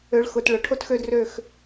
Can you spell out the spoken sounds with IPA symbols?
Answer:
ø˨˦ ɭ x ʊ˨ t ɭ ʊ˨ ʈʰ o˦ t x ø˦ d r ø˦˨ x

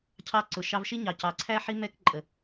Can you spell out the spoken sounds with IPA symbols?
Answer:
cʰ ɑ˧ ǀ ʊ˨ ʃ ɑ˧ v ʃ i˦ ɲ ɑ˨ c ɑ˨ ǀʰ æ˦ ħ i˦ m ɛ˦ k ǃʼ ə˨

